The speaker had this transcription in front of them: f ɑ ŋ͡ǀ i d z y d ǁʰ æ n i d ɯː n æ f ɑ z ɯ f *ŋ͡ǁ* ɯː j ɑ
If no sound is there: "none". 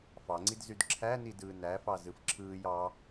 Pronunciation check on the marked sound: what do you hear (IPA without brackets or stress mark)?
ǁʰ